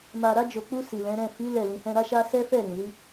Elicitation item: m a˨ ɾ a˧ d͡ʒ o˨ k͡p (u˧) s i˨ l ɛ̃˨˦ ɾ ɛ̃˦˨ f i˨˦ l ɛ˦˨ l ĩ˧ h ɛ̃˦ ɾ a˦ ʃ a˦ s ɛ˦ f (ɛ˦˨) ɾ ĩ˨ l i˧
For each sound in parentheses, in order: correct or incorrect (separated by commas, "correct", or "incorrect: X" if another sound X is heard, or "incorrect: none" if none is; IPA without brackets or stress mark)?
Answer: correct, correct